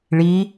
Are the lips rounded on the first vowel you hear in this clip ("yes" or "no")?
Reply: no